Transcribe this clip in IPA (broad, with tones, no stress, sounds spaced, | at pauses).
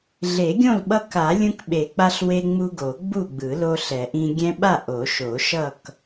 ɮ e˨˩˦ ɡʲ õ˥˨ l ɓ ʌ˦ k a˨˩˦ lʲ ũ˦ k ɓ e˨˩˦ k͡p a˦ ɬ w e˦ ŋ͡m u˦ ɡ o˨˩˦ ɡ͡b u˥˨ ɡ͡b ɯ˨˩˦ l o˦ ɬ ɛ˨˩˦ ʔ ĩ˦ ɡʲ ɛ̃˦ ɓ a˥˨ ʔ o˨˩˦ ʃ o˨˩˦ ʃ ʌ˥˨ k